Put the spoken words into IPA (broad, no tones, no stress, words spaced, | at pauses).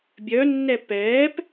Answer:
bʲœnːɛ pɛːp